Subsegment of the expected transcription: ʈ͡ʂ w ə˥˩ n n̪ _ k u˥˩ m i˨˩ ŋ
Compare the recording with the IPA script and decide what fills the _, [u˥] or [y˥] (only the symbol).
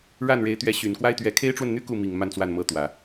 y˥